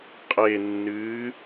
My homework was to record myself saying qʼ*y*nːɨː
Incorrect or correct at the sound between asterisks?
incorrect: e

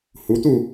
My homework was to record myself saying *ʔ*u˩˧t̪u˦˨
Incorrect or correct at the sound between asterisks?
incorrect: h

